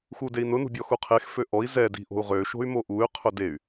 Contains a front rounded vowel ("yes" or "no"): yes